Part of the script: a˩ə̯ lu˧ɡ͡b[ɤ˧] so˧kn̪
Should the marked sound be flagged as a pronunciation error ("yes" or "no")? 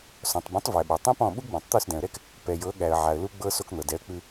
no